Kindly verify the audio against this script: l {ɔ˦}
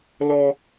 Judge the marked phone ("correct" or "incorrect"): correct